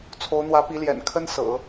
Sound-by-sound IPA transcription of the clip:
t͡sʰ o˧˥ ʊ̯ n̪ w ä˧˥ p i˧˥ l j ɛ̰˨˩ n kʰ ə˥ n s ɤ̰˨˩˦

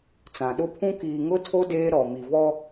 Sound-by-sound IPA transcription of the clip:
t͡s ã˨ ɗ ʊ˦ pʰ ũ˦ k iː˨ ŋ ʊ˦ tʰ o˦ d eː˦ ɾ ɔ˨ m i˨ v ɔ˦

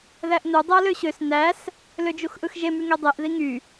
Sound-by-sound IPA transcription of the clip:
ð æ ʔ n u dˤ e ɐ̯ l ø ɕ ø s n æ s | l ø d͡ʒ u x ʔ ɯ x ʒ e m y ŋ e dˤ e ʔ ð i ŋ y

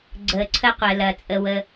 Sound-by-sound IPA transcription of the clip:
ɡ͡ǀ əː˧ ǀʰ ə˥ qʷ ɜ˧ l ɐ˧ t͡sʼ ə˧ w ə˧

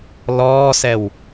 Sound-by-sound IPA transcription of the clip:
l ɔː s ɛ w

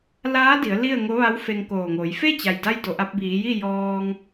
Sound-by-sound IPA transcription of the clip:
l aː˧˥ d i˩˧ ə̯ l i˥˨ ə̯ ŋ o˧˥ ʋ a˧˥ w f e˧ ŋ k oː˧˩ ŋ oː˩˧ j f e˥˨ t͡ɕ a˩ j d a˧ j d o˩ ʔ a˧ p̚ b iː˩˧ j i˥˨ j ɔː˧ ŋ

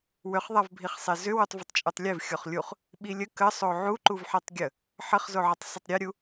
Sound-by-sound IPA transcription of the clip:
w ʏ χ ðˤ a v bʱ i χ sˤ e z ʏ w u tˤ v ʏ tˤ t͡ʃʼ u tˤ lʲ e v xʲ o χ lʲ u χ | ɓ i lʲ ə k ə sˤ o ʕ u ǃ u v ħ e tˤ ɡʲ ə | ħ ə χ z o ʕ ə tˤ sˤ ə tˤ ɾʲ e ɾʲ u

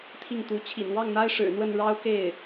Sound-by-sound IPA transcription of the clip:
t̪ʰ i˥˩ ŋ t̪ u˧˥ t͡ɕʰ ḭ˨˩ n w ɑ˥˩ ŋ n̪ a˥ ɪ̯ ʂ ɻ̩˨˩ n̪ w ə˥˩ n ɻ ɑ˥ ʊ̯ k e˥˩ ɪ̯

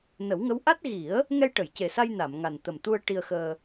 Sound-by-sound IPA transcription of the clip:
n ə˨˩˦ w ŋ ə˧˥ w ʔ a˦˥ t̚ ɣ i˨˩˦ ə̯ | ŋ ɛ˧ j ʈ ə˨˩˨ j c e˨˩ s a˧ j n a˨˩˨ m ŋ a˨˩ n t̪ ə˨˩ m t̪ u˧ ə̯ ʈ i˧ ə̯ x əː˧

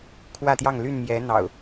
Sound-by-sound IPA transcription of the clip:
kʰ w ä˥˨ t̪ j ɑ˥˨ ŋ l y˥˨ n m j ɛ˨˦ n̪ ɑ̰˨˩ ʊ̯

